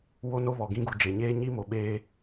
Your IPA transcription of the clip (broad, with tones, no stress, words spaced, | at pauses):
wo˦ no˦βɔ˨ɡĩ˦ɡu˨ d͡ʒe˨ɲeː˦ɲi˦ mo˨ɓeː˦